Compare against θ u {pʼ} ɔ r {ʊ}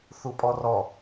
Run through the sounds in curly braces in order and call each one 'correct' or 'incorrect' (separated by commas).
correct, incorrect